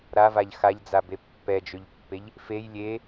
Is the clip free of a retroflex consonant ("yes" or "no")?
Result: yes